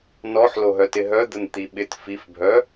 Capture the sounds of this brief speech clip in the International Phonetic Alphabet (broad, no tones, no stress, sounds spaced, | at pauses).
n ɔ ħ l o ɦ œ t ɪ ɦ œ d̪ ə n t̪ i ɓ ɪ t f i f bʱ œ